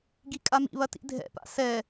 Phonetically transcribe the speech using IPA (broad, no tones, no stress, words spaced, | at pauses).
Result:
ɡikʼamḭβɐ tḭdʱɛ̰pa̰ sɛ